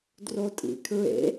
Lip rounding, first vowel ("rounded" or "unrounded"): rounded